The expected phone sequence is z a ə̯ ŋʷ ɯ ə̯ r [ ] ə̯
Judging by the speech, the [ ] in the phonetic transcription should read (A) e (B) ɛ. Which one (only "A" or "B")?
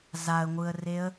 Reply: A